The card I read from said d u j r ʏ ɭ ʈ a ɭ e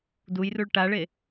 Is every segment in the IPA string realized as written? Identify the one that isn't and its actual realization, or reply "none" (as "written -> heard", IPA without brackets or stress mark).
ʏ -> u